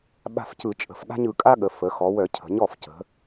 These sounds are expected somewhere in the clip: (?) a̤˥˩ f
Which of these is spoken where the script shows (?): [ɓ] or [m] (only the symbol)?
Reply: ɓ